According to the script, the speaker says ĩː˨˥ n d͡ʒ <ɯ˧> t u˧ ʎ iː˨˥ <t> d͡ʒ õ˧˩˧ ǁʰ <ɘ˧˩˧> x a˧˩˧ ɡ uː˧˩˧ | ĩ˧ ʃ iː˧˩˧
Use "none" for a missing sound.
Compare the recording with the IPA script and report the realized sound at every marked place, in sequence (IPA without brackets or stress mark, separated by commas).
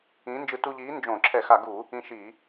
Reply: ɯ˧, n, ɛ˧˩˧